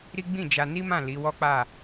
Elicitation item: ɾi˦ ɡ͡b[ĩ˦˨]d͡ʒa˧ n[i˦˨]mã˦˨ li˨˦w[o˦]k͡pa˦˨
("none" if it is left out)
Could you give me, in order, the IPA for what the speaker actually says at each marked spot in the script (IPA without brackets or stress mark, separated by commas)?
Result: ĩ˦˨, i˦, ɔ˦